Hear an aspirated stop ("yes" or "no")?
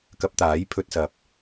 yes